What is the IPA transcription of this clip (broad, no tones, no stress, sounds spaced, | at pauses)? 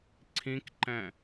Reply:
ǀʰ ĩ k ǃ ɛ̃